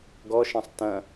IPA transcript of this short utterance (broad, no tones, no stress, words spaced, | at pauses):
ɡɔʃɐ̃sˤ tɐ̃